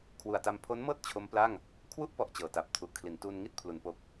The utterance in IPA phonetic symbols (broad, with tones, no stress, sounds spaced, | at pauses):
kʰ w u˨˩ a̯ t a˧ m pʰ o˦˥ n m ɤː˥˩ t̚ t͡ɕʰ o˦˥ m p l a˥˩ ŋ | kʰ w u˦˥ ʔ p ɔ˨˩ ʔ t͡ɕ ɤː˨˩ t a˨˩ p̚ tʰ u˨˩ ʔ kʰ l i˩˦ n t uː˧ n ŋ i˥˩ t̚ pʰ l u˩˦ n p o˨˩ k̚